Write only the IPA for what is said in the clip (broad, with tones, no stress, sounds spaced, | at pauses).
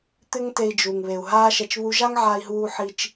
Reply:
t̪ ɪ˦ ŋ t e˧ i̯ d͡ʒ u˨ ŋ β e˨ u̯ ɦ aː˦ ʃ ɛ˧ t͡ʃ β u˧ ʒ a˦ ŋ ʕ a˧ i̯ ɦ uː˧ ħ i˧ t͡ʃ